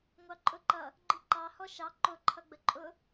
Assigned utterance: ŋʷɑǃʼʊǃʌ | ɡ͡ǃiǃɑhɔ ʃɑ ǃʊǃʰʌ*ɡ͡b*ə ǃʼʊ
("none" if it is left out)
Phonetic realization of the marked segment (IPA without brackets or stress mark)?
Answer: ɡ͡b